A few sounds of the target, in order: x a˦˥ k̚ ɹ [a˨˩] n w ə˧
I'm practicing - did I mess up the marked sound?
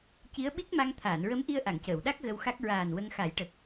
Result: yes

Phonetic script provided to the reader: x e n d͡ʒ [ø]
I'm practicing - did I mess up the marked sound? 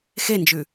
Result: yes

